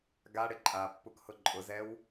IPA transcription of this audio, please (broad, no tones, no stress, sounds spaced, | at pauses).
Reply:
ɡ a ɽ ɪ ǃʼ a pː u k h ʊ ǃʼ ʊ z ɛ w